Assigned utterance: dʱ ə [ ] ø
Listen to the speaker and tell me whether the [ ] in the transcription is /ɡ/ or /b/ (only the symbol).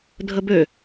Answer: b